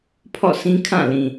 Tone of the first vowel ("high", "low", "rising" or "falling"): falling